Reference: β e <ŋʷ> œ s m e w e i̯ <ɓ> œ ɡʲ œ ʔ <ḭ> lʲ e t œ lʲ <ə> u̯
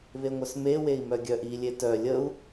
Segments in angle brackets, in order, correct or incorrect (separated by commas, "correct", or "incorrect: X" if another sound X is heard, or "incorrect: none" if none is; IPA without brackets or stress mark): correct, incorrect: m, incorrect: i, correct